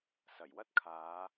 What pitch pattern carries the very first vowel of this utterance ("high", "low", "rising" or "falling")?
low